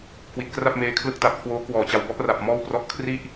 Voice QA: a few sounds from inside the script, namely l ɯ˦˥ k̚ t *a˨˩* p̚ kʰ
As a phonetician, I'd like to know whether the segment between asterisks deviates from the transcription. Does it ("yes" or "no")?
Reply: no